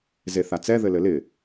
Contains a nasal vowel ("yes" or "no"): no